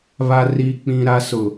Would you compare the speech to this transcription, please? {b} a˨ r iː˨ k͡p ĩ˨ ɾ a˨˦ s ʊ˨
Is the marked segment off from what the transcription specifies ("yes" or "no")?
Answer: yes